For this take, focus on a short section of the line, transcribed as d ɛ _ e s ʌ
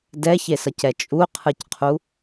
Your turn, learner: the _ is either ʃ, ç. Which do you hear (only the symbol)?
ç